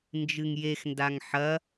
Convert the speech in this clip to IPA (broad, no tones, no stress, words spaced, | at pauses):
nd͡ʒɨŋjex ndaŋħɐ